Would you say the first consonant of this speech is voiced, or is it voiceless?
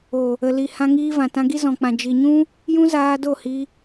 voiced